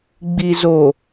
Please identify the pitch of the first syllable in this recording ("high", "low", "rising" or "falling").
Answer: low